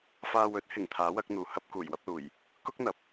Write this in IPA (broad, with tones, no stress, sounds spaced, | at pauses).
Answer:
f aː˨ w ɵ˨˥ t̚ h ɪ˨˩ ŋ t̪ʰ aː˨˥ w ɐ˨˥ k̚ n̪ uː˨ h ɐ˧ p̚ k uː˨˩ j w ɐ˧ p̚ l uː˨˩ j | k ʊ˥ k̚ n̪ ɐ˨˥ p̚